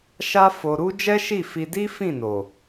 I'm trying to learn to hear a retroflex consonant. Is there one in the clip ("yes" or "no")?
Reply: no